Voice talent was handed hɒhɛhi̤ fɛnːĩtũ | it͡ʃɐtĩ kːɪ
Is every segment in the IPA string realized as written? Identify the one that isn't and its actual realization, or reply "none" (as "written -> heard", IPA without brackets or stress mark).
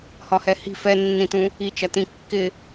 none